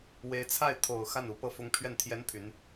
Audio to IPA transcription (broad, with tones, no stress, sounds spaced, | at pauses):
w e˧˥ ɪ̯ t͡sʰ a˥˩ ɪ̯ t̪ʰ o˨˩ ʊ̯ x a˥˩ n u˧˥ p ɤ˥˩ f ʊ˥ ŋ pʰ ɥ ɛ˥˩ n t̪ʰ j ɛ˥ n pʰ y˧˥ n